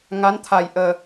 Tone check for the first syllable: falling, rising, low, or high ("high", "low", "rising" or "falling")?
rising